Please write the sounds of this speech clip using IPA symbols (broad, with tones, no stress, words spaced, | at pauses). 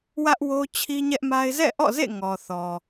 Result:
wä˦ʔwo˦ t͡ɕʰi˦ɲɛ˦ʔma˦ɪ̯ zɛ̰˦˨ʔɔ̰˦˨zḛ˦˨ ŋɔ˨ θɔ˨